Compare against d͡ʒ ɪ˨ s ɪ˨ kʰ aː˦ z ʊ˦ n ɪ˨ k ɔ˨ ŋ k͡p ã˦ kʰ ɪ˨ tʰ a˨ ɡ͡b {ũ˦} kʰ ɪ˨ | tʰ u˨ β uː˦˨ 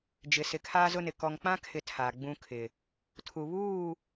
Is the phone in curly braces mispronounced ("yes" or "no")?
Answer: no